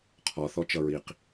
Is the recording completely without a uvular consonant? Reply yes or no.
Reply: no